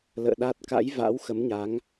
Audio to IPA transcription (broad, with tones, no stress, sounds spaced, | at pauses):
l ə̰ː˧˨ ɗ a˦˥ t̚ k a̰˧˥ j v a̰˧˥ w x ə˨˦ m ɲ a˨˦ ŋ